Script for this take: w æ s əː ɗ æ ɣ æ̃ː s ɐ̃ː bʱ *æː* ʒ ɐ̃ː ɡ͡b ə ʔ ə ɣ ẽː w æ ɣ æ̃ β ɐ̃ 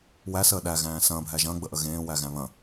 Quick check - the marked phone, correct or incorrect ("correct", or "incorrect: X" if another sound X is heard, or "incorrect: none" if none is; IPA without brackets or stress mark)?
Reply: incorrect: æ